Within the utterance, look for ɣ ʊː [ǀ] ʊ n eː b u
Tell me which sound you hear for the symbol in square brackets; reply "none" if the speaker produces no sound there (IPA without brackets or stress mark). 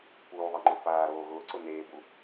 ǀ